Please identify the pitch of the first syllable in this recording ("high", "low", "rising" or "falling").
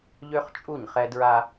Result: high